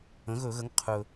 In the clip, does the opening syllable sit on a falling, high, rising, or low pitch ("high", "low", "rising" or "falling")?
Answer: rising